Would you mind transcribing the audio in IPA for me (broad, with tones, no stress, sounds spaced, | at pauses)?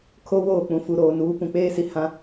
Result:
kʰ o˦ w oː˦˨ k͡p ũ˨ f u˨ ɾ oː˨ n uː˨˦ p ũ˨ k͡p eː˦ s i˨ h ã˦